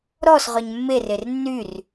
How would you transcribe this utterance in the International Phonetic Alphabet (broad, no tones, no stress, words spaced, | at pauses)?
ɾɔs ʁœɲmːerer nːyr